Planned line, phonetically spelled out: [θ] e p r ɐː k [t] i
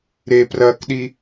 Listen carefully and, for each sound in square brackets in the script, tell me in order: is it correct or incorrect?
incorrect: ɾ, incorrect: ɗ

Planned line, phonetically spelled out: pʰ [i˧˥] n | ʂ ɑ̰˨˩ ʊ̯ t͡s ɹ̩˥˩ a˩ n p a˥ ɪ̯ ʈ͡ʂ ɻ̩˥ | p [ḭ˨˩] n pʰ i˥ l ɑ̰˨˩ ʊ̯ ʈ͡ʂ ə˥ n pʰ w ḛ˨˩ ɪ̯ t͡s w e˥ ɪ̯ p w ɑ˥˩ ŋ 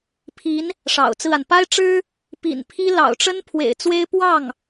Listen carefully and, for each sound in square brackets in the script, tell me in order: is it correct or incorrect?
correct, correct

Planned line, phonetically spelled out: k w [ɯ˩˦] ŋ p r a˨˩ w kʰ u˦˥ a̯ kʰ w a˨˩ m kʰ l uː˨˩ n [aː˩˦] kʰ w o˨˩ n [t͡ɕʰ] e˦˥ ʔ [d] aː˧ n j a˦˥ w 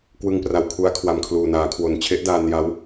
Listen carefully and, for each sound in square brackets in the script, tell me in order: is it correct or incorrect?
incorrect: ɯ˧, correct, correct, correct

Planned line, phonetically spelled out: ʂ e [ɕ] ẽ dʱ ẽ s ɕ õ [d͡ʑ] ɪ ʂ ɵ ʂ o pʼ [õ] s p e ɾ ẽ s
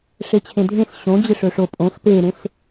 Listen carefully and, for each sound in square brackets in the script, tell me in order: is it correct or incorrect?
incorrect: t͡ɕʰ, correct, correct

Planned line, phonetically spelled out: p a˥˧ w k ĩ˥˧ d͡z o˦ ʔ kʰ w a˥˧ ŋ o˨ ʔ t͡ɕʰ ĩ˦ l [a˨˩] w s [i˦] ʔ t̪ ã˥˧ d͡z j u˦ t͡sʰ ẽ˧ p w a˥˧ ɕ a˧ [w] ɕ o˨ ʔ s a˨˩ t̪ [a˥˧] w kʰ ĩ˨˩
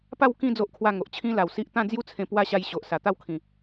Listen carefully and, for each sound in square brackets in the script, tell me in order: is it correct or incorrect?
correct, correct, incorrect: j, correct

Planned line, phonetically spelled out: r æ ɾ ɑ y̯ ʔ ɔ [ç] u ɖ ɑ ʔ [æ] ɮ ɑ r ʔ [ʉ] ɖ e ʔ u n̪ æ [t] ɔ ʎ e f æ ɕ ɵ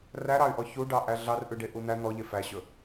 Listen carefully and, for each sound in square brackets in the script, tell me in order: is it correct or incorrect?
correct, correct, correct, incorrect: n̪

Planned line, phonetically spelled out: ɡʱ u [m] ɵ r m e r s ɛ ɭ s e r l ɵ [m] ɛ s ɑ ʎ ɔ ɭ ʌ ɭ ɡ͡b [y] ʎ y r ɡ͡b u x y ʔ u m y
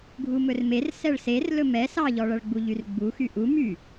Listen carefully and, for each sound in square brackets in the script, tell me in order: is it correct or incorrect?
correct, correct, incorrect: u

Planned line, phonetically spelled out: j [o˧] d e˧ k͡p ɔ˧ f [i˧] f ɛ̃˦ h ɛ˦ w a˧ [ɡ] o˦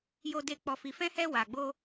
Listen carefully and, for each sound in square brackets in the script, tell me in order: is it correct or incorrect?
correct, correct, incorrect: ɡ͡b

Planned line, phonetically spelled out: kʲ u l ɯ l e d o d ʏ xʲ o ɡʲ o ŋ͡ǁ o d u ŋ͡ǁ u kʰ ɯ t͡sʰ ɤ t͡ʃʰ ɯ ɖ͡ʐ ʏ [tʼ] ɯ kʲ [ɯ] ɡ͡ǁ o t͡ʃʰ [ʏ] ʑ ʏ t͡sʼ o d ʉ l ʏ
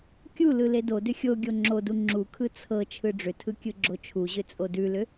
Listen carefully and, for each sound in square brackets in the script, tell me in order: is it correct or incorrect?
incorrect: tʰ, correct, incorrect: u

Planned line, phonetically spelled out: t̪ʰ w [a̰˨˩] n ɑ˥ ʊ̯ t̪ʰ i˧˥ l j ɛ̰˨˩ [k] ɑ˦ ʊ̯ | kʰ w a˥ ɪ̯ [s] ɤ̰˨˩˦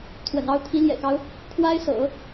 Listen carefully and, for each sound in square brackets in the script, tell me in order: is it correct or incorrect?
incorrect: ə̰˨˩, correct, correct

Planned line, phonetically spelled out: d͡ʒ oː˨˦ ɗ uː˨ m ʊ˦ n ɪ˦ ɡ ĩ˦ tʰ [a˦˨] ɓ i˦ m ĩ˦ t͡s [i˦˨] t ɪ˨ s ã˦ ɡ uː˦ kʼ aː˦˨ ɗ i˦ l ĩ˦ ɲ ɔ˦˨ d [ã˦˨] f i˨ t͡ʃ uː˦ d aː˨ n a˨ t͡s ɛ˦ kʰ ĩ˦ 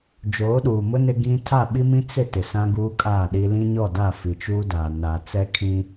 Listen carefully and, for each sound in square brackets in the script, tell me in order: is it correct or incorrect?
correct, incorrect: ɪ˦˨, incorrect: a˦˨

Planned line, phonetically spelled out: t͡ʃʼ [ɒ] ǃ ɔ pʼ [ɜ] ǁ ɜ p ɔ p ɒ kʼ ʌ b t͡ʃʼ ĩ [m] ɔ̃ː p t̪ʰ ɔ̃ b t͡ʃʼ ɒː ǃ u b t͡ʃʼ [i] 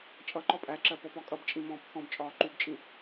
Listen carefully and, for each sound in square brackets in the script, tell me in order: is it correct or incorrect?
incorrect: ʌ, incorrect: æ, correct, incorrect: ĩ

